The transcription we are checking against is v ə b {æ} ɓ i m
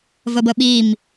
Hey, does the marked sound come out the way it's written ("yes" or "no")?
no